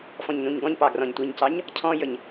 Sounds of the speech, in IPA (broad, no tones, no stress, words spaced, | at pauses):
fɔ̃ɲnũɲɡɔ̃ɲpɑ ɡrɔ̃ɲtʷiɲcɑɲ | cʰɔ̃jəɲ